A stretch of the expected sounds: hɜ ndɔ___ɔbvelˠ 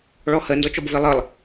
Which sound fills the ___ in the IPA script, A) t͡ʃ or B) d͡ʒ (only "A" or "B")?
A